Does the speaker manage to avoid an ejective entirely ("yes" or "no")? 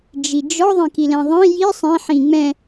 yes